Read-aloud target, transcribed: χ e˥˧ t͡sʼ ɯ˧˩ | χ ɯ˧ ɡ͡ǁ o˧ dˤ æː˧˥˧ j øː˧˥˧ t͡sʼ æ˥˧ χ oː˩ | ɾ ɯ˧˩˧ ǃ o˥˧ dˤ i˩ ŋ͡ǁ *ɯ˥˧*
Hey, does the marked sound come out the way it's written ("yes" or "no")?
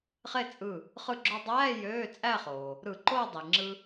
no